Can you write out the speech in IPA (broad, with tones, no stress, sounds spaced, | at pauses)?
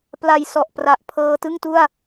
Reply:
p l a˨˩ j s ɔ˨˩ ʔ p r a˨˩ ʔ pʰ ɤː˧ t ɯ˥˩ ŋ t u˥˩ a̯